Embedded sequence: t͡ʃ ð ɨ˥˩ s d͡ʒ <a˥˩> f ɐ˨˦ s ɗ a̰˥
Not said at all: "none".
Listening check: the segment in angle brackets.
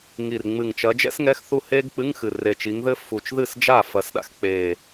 a˥˩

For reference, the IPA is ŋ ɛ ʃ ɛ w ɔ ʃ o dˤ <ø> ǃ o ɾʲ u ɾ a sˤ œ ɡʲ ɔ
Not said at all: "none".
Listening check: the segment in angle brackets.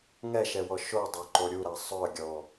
ø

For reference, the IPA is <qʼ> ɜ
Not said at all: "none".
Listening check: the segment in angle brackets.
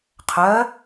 qʰ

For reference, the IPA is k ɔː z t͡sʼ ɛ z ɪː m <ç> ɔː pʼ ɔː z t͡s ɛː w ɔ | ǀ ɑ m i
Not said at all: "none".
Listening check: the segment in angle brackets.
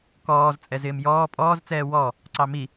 j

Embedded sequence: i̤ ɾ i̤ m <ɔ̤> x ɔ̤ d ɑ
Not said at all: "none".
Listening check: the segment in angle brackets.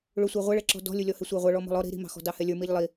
ɑ̤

